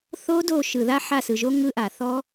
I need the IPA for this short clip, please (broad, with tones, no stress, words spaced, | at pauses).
θo˦˥ do˦˨ ʃɯ˩ða˦˥ ħa˦˨sɯ˩ʒo˦˥ ŋɯ˦˥ʔa˩ θɔ˦˥